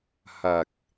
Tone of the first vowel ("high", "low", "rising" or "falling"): low